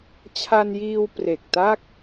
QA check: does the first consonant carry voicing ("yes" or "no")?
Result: no